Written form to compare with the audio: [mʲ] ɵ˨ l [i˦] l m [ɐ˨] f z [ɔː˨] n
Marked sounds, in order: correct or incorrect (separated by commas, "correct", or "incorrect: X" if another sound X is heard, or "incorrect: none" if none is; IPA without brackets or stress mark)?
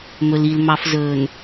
incorrect: m, incorrect: i˨, incorrect: ɑ˨, incorrect: ɵː˨